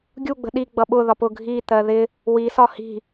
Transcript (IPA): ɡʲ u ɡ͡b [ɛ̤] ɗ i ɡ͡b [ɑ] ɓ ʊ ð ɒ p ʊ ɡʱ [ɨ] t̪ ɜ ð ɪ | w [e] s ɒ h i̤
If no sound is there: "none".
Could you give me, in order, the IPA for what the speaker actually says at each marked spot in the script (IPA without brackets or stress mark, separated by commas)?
ə̤, ʌ, i, i